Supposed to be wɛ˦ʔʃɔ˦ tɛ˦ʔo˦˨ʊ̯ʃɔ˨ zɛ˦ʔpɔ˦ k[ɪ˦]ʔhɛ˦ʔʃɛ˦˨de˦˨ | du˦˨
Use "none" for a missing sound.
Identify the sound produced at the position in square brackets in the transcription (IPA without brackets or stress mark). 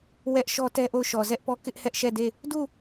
ɪ˦